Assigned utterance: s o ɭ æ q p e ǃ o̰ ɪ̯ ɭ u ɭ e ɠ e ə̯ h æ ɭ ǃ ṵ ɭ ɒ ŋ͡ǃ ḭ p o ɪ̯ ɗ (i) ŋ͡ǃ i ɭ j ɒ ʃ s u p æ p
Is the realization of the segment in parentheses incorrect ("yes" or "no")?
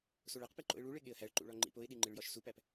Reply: no